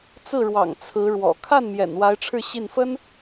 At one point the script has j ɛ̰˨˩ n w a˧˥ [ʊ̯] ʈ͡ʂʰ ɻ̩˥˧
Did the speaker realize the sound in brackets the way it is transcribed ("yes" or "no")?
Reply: no